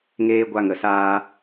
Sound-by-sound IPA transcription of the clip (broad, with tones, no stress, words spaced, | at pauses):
ŋeː˧ ɡʷa˧ŋə˨saː˧